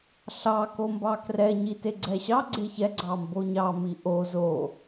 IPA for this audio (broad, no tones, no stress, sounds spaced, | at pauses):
ɬ ɑ k o m b ɑ k r ɛ ɲ i t e ɡ͡ǀ ɛ ɕ ɑ ɡ͡ǀ e ç ɛ ɡ͡ǀ ɑ m b o ɲ ɑ m i ʔ o z o